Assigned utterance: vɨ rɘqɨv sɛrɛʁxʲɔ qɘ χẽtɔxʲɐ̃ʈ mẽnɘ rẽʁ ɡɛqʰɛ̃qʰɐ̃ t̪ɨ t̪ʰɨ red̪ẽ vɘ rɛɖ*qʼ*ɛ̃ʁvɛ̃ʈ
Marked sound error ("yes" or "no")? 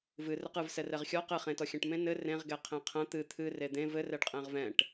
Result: no